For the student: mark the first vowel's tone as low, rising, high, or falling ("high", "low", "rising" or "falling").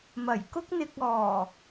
low